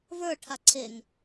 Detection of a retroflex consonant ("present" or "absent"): present